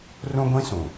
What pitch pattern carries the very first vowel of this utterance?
high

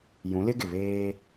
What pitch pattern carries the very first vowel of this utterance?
rising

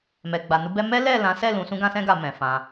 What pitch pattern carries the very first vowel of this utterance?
low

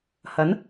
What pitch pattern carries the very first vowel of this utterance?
rising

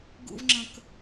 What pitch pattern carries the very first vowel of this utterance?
high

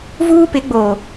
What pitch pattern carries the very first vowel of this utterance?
high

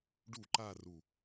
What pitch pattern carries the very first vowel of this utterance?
falling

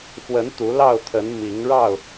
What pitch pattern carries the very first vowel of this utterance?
rising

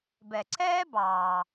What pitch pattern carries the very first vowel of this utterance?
low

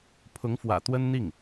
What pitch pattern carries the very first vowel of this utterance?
rising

